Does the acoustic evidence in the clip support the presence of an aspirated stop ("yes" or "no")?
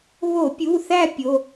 no